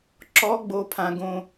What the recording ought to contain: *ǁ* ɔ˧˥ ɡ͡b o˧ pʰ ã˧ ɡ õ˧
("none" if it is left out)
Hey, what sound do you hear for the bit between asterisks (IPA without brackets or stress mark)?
ǁ